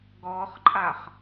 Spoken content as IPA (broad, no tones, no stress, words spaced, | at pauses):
ɡɔχǃʼaχ